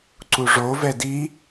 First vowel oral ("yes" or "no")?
yes